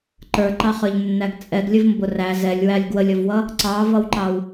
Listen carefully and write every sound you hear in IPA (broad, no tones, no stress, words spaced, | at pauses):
ǃə˞ǃɑχə˞ʎnːæɡ t͡sʼɛɡlʲəvmbʊ ræ zɛlʲwælʲ ɡwəlʲʌvwʌ | ǀɑvʌwǃɑw